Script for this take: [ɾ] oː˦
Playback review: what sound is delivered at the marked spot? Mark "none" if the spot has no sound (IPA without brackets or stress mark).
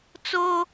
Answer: t͡s